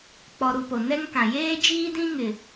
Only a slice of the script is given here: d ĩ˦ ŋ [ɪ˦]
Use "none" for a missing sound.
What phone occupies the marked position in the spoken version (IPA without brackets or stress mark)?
ɪ˨